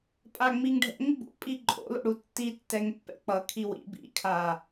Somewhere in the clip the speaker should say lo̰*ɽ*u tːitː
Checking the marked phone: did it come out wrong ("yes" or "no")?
no